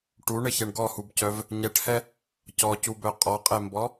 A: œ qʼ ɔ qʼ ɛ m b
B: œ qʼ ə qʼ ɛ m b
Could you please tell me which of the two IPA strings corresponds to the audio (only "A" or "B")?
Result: A